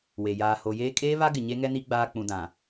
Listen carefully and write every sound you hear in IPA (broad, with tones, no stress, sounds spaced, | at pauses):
w e˨ j aː˨ h o˨ j eː˦ kʼ eː˦ β a˦ ɡ ɪ˨ ɲ e˦ ŋ ɛ˦ n i˦ ɡ͡b aː˦ k͡p ũ˨ d ã˨